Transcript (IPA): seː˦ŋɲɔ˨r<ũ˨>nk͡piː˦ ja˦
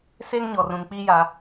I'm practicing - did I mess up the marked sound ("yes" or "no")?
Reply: no